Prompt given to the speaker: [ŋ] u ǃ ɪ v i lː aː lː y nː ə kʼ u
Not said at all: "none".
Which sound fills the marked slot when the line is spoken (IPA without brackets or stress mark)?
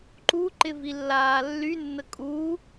ǃ